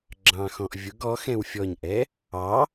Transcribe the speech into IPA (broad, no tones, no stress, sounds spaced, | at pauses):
ɡ͡ǁ ɑ̃ x ɔ̃ ʔ vʲ ʊ ɡ ɔ x ɛ̃ w fʲ ɔ ɲ ʔ ɛ | ɑ